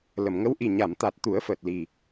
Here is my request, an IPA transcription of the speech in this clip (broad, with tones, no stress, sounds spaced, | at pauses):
l ə˨˩˨ m ŋ ə˧˥ w ʔ i˨˩ ɲ a˨˩˨ m t̪ a˨˩ t̚ t̪ u˨˩˦ ə̯ f əː˨˩ t̚ l i˨˩